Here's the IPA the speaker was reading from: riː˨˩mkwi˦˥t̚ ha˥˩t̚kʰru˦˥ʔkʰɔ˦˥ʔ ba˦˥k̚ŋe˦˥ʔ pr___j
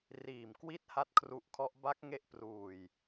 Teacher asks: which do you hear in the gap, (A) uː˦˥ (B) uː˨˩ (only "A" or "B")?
B